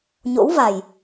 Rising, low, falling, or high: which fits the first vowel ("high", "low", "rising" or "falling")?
rising